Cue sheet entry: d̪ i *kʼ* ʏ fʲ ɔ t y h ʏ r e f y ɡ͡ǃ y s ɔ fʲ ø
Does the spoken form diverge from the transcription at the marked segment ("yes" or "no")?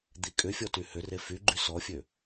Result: no